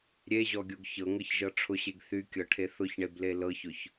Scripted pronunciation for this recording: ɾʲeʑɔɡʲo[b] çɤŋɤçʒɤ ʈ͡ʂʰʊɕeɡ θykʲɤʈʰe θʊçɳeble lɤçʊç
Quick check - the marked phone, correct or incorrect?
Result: incorrect